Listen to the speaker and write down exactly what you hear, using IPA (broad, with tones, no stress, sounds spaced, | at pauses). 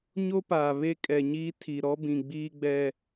ɲ o˦ p aː˨ β e˦ kʼ ɛ˨ ɲ iː˦ tʰ i˨ ɾ ɔ˦ b ĩ˨ ɡ͡b iː˦ ɡ͡b ɛ˦